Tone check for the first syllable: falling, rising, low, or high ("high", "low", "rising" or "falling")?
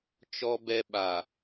high